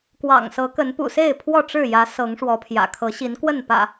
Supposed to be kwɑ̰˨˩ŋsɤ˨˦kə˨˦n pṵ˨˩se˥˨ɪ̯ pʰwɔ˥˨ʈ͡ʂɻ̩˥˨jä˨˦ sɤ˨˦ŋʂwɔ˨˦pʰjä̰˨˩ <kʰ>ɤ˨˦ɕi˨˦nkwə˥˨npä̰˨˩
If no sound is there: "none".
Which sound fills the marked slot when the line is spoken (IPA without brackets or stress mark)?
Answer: kʰ